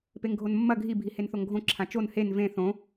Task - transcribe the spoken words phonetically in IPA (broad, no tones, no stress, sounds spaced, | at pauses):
p e ŋ ɡʱ o n mː ɐ ɡʱ i bʱ i h e n θ o ŋ ɡʱ õ ǁʰ ã t͡ʃ o n h e n v ẽ θ õ